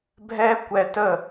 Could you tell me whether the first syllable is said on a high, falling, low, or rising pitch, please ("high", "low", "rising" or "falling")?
high